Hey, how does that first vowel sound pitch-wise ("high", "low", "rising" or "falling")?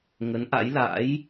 rising